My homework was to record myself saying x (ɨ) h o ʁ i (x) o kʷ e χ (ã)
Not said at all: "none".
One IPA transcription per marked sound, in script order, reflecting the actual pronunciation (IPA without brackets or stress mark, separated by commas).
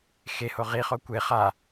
e, χ, a